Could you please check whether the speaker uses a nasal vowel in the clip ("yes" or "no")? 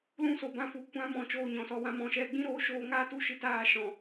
yes